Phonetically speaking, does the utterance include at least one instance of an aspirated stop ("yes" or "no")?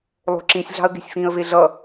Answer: no